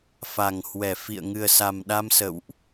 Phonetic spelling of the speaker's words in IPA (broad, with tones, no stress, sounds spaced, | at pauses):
f a˧˩ ŋ h w ɛ˧˩ f ḭ˧˨ ə̯ ŋ ɨ˨˩ ə̯ s a˨˩ m ɗ a˧ m s ə̰˧˨ w ʔ